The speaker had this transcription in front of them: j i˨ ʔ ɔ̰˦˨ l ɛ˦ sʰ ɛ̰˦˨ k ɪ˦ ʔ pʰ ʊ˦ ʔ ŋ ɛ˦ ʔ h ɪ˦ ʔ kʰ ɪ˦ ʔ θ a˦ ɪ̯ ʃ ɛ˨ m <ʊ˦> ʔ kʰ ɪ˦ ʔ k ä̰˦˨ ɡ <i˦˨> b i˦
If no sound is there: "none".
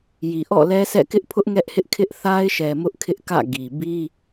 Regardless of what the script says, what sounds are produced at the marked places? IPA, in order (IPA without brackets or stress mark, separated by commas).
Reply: ʊ˦, i˨